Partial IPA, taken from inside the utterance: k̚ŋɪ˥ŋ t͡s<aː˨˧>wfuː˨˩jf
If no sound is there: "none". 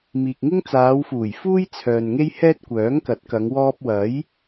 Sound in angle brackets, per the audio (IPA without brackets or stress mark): aː˨˧